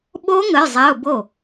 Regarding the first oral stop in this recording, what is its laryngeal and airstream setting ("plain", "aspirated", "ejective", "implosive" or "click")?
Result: implosive